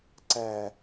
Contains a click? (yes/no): yes